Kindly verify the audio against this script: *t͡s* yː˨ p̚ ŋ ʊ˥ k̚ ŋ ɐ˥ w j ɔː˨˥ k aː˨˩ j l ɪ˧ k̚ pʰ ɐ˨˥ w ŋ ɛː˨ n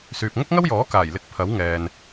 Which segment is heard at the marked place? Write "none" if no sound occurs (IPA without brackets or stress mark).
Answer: s